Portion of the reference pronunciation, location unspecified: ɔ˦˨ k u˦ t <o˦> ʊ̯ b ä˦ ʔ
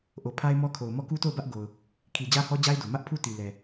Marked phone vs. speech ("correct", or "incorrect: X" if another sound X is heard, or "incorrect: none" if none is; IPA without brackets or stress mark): incorrect: o˦˨